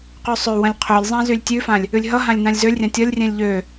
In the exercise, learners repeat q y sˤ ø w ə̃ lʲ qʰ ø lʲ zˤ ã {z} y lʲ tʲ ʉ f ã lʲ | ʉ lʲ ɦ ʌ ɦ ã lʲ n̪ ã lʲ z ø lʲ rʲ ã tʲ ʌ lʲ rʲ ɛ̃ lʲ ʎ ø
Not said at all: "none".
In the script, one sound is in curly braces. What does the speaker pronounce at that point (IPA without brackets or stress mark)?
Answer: z